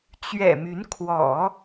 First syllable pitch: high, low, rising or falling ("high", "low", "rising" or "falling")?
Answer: low